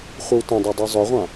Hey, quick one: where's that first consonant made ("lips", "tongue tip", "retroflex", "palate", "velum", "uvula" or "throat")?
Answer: uvula